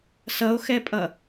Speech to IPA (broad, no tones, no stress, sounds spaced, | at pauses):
s ʌ o̯ x ɛ pʼ ʌ